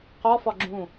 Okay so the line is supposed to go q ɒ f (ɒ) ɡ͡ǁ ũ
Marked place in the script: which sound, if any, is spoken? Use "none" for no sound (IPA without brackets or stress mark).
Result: ɒ